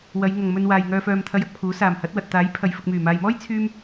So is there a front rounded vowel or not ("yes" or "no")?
yes